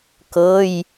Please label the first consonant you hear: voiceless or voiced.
voiceless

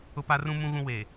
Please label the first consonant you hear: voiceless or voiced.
voiceless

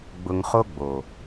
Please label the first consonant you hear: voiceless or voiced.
voiced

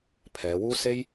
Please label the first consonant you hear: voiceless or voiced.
voiceless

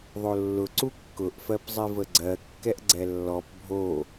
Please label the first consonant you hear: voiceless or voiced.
voiced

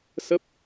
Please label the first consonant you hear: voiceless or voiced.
voiceless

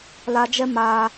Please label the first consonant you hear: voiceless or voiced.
voiced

